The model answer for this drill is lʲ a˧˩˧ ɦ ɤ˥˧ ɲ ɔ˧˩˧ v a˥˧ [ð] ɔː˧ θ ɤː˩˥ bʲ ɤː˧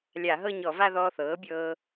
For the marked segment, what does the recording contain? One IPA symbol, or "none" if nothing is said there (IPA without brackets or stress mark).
ð